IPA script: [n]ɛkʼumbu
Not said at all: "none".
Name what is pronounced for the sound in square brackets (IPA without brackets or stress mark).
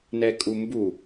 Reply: n